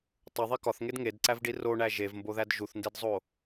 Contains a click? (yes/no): yes